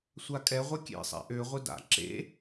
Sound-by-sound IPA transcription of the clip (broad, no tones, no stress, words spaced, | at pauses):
sʷakʼɛʁʷɐ kʲḛsˤɛ̰ ʔøʁʷɪ da̰ ǁḛ